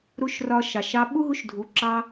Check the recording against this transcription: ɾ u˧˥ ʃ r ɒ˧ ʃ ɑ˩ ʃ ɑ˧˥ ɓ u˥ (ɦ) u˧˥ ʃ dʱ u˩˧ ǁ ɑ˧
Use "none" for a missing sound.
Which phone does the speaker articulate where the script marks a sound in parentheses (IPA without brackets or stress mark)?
ɦ